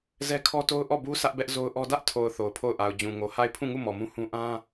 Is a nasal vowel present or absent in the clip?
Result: present